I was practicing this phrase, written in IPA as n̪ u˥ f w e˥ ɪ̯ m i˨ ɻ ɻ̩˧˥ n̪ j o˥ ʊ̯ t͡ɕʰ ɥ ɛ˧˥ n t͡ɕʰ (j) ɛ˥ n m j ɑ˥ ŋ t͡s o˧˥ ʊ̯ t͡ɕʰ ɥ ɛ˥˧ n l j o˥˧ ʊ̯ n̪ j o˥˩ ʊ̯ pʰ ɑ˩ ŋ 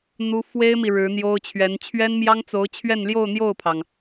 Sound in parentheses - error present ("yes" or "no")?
yes